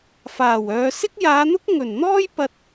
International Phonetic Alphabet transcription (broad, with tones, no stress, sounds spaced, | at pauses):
f aː˨˩ w œː˨˧ s ɪ˥ k̚ j aː˨˧ n̪ ʊ˥ k̚ ŋ ɵ˨˩ n n̪ ɔː˥ j p ɐ˧ t̚